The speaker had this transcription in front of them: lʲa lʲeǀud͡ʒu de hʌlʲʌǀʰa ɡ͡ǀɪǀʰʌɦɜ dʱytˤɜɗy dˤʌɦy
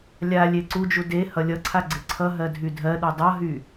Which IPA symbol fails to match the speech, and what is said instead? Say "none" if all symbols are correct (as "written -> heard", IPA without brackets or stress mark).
tˤ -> dʱ